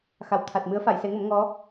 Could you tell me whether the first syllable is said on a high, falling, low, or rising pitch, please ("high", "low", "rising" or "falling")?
low